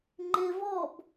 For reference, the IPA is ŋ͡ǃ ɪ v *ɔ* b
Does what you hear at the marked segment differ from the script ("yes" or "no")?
no